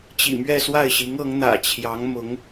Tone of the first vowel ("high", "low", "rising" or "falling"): low